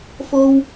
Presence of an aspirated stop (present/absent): absent